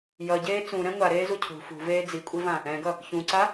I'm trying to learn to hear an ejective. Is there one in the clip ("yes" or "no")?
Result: yes